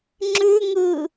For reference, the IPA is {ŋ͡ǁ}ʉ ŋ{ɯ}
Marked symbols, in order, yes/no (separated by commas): yes, yes